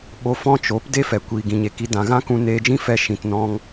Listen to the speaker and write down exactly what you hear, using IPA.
ɓo˧ fɔ̃˦t͡ʃo˨˦p de˦fɛ˨ kʷiː˨ɡĩ˨ɲe˨ki˧ dã˨ɣã˦kũ˧ neː˧d͡ʒĩ˦fɛ˧ ʃĩ˨tnɔ̃˧ŋ

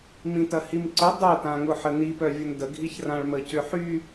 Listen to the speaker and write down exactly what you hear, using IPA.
mĩtɐhimǀʊ dˤœtãŋʊ ħəni pœvʲʊndəɡʱiç rãɭməcʏħy

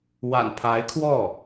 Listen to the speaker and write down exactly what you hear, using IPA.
wa̰˨˩npʰa˧˥ɪ̯kʰwɔ˥˩

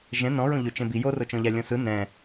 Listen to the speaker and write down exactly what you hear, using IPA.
ʒɛ̃ nɔ̃ɹõ ʎot͡ʃɛ̃bi jorot͡ʃɔ̃ʎa lʲɔ̃sɯ nɛ̃

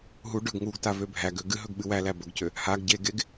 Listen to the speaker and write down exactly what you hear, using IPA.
ɦu ɖɵɡ ŋuɡta vøbʱæɡø ɡɨɦɵɡ ɓɨwælæ bɵɡcø | haɡ ɟeɡeɡ

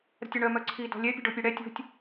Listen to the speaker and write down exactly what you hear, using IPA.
ɾə̤tʲɔɳœ mœǀʰi dɔ̤lʲɛ pʲə̤ɖopʲøɽɛ tʲo̤tʲ

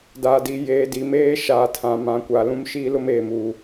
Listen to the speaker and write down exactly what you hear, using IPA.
daː˨di˨ jeː˨di˨meː˦ ʃaː˨tʰã˨ mã˨kʷa˨ lũ˦mʃiː˦ lʊ˦meː˨muː˨

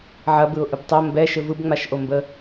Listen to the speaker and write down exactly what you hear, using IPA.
ʕɐbɯʊ̯ʔɯb tˤo mbɛʃɘ vɯbŋ͡maʃʔombə

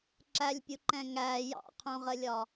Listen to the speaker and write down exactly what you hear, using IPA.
ǁælʲpʲuǃɛ̃ ŋæ jɑ̰qʰũʁəlʲɒ

